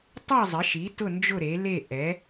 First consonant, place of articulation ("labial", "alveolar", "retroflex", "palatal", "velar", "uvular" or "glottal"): alveolar